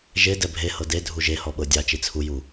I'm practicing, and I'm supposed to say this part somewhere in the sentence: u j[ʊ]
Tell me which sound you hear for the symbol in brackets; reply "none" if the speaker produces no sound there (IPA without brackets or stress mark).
u